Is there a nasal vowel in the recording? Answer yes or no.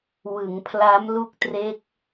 no